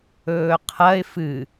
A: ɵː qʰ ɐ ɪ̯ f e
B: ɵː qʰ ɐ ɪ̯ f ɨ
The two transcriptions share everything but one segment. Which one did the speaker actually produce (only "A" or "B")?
B